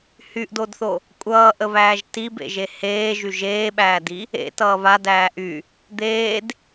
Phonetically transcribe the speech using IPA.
hyʔdodθo | kʷʼʌːʔəβæːʒ tibḛʒe heːʒy ʒeːɓæːdi | ḛtʌː βadæː ʔy | d̪eːd

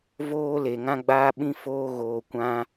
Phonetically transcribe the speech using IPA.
voː˦le˨ ŋã˦ɡ͡baː˦ɓĩ˦foː˦ ɣoː˨kʷã˧

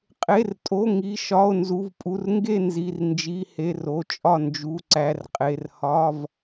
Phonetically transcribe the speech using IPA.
qʼe˩˧˩rtʼo˩˧˩ ŋi˩˧˩ ʃɒ˩˧˩o̯ nzu˩˧˩vpʼu˩˧˩r ŋɡe˥˩nzi˩˧˩r nd͡ʒi˩˧˩ he˩˧˩ro˩˧˩ t͡ʃʼɒ˥˩ nd͡ʒu˩˧˩ ǀæ˩˧˩rqʼe˩˧˩r hɒ˩˧˩v

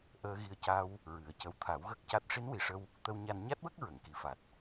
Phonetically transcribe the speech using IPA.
ʔəː˧ɣi˧ə̯ca˧w | ɹɨ˨˩˦ə̯cə˧˥w t̪ʰa˨˩˦w ɣə˦˥k̚ca˦˥t̚ ʂi˧˥nwi˨˩ʂə˧w | t̪ə˧wɲa˧n ɲa˦˥t̚wə˦˥k̚ ɹə˨˩˨ŋki˨˩fa˨˩t̚

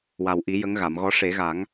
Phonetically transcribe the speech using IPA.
wa˨˩wʔi˨˩˦ jə˧˥ŋɣa˨˩˨mɣɔ˧˥ ʂe˨˩˦ɣa˨˩˦ŋ

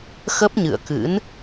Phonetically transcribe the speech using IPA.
xə˦˥p̚ɲɨ̰˧˨ə̯kɨ̰˧˥n

